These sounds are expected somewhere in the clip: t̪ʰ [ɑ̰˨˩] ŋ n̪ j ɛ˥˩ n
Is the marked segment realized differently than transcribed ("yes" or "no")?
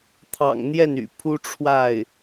no